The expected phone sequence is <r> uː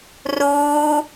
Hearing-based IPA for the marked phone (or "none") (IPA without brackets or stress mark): r